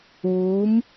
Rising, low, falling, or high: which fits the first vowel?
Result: rising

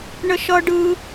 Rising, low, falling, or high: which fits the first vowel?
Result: high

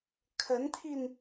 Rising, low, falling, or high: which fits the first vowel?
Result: rising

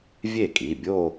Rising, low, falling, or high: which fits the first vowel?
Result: falling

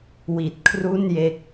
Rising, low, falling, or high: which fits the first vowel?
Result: low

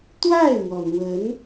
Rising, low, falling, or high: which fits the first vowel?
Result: falling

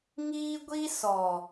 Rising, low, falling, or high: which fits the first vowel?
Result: high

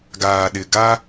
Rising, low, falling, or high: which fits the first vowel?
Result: low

